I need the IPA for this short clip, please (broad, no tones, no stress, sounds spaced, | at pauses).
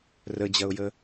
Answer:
r ə d͡ʑ ɐ ʊ̯ j ə